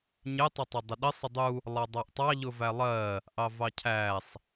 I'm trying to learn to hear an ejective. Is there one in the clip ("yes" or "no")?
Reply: no